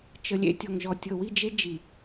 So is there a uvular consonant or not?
no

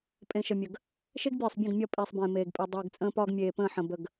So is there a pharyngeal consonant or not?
yes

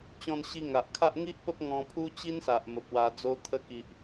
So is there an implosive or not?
no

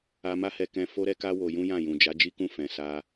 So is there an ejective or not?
no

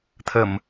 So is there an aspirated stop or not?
yes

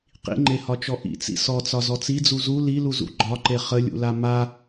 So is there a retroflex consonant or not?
no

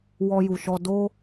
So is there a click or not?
no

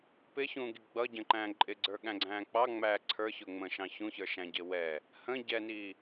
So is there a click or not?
yes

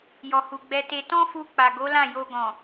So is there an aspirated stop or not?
no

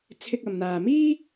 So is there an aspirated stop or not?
yes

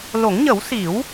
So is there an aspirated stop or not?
no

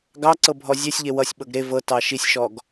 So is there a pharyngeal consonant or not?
no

